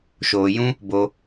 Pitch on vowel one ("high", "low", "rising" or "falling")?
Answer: low